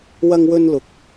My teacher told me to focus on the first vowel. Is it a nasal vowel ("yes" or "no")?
no